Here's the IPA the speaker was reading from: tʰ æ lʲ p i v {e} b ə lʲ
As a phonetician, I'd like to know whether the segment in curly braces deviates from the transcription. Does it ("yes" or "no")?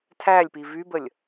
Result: yes